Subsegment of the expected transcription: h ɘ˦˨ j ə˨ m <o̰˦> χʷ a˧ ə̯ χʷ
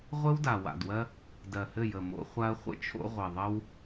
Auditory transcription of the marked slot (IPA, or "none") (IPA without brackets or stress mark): o̰˧